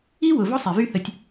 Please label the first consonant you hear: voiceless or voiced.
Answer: voiced